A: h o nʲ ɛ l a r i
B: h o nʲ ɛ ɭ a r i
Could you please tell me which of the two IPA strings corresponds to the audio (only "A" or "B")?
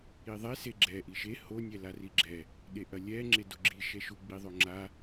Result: A